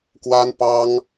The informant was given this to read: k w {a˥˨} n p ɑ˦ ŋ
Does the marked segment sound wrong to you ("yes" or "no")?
yes